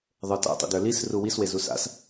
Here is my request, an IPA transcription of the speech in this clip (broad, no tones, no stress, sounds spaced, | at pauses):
ðˤ ə˞ t a̰ tˤ ḭ d ə˞ l i s r u w i s w e z u s a̰ s